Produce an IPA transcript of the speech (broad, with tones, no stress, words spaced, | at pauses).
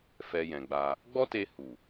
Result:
fɛ˨ jɛ̃˨ɡ͡ba˧ | ɡ͡bɔ˦te˧hu˨